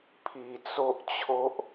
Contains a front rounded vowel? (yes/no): no